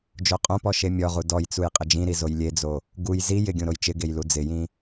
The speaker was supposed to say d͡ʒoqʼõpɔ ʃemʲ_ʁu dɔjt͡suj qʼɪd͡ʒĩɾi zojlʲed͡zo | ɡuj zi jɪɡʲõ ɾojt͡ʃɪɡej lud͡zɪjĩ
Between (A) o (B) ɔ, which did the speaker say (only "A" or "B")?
B